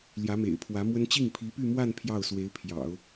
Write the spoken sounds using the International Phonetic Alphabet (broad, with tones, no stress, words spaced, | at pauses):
ljä˧˥mḛ˨˩ɪ̯pʰwä˧˥mwə˥n t͡ɕi˥˩ŋpʰi˧˥py˥˧mwa˥˧n pʰjɑ˥˩ʊ̯swe˧˥ɪ̯pʰjɑ̰˨˩˦ʊ̯